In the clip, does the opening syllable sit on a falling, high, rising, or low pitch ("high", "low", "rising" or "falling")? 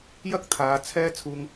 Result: high